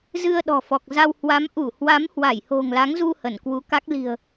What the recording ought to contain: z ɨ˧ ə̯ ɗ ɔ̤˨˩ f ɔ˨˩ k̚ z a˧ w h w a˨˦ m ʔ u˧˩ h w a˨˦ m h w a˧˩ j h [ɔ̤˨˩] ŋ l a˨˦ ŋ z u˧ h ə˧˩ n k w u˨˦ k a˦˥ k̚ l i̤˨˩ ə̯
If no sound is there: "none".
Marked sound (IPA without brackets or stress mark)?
o̤˨˩